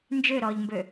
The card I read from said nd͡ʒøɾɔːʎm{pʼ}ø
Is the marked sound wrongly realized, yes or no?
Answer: yes